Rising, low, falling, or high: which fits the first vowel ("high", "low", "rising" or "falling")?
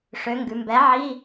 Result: rising